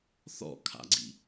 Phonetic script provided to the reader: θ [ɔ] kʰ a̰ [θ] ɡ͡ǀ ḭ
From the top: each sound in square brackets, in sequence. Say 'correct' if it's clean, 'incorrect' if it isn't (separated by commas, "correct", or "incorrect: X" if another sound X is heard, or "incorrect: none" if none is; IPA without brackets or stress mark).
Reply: incorrect: ɔ̰, incorrect: none